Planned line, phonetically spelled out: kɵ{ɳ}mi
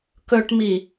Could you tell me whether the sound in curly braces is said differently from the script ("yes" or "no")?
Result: yes